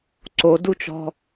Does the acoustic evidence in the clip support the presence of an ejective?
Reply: no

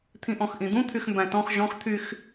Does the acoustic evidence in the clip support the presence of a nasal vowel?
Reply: yes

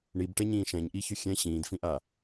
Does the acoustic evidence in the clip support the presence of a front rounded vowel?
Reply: yes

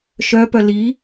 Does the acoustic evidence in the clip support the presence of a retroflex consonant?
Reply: no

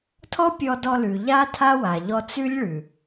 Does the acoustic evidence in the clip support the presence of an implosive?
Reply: no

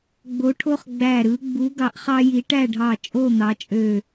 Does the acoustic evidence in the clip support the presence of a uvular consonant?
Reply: yes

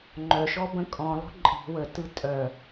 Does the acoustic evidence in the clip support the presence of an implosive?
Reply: no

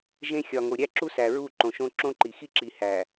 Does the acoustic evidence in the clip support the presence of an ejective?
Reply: no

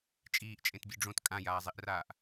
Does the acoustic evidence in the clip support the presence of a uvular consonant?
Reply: no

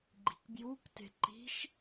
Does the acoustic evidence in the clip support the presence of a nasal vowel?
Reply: no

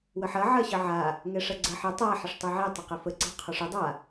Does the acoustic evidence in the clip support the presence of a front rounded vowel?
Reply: no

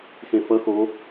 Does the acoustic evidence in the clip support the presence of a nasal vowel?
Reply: yes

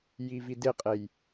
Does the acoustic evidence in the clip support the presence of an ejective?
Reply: yes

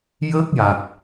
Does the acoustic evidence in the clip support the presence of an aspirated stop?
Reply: no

